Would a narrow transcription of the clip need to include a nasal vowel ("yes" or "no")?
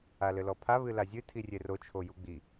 no